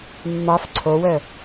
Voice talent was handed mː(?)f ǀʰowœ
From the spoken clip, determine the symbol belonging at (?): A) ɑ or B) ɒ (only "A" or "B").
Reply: A